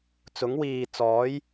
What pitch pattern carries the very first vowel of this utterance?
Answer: rising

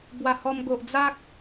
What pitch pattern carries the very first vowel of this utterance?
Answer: low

